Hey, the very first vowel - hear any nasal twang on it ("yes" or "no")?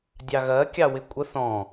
no